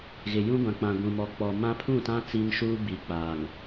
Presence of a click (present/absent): absent